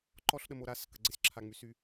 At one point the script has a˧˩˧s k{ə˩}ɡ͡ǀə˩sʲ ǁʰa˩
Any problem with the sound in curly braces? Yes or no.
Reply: no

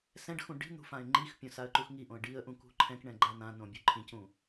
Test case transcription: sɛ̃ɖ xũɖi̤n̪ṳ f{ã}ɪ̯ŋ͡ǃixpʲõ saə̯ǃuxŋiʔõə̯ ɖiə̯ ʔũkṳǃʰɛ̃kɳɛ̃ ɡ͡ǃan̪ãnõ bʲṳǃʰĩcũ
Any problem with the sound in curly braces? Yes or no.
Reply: no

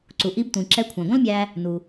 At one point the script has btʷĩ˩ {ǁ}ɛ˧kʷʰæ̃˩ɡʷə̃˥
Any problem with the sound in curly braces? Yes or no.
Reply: no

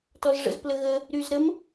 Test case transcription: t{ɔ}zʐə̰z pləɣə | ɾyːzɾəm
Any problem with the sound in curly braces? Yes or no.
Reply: no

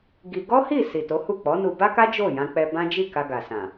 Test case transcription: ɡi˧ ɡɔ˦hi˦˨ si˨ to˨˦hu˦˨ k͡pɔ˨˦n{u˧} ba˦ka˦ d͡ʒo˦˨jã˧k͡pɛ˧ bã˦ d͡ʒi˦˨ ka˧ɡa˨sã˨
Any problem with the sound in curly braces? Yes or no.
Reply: no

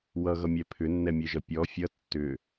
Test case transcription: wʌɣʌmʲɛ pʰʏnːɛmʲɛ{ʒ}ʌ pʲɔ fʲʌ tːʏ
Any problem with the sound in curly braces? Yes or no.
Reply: no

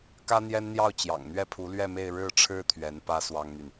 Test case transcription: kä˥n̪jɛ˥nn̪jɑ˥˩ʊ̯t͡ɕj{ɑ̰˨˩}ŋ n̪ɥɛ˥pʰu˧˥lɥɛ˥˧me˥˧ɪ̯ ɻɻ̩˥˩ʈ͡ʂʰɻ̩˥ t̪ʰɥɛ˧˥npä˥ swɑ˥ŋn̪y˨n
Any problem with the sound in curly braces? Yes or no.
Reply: no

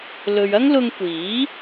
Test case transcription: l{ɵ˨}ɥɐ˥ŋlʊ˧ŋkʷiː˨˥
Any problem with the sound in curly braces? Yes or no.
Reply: no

